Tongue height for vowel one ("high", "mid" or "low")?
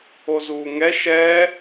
mid